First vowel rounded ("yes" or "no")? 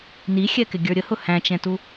no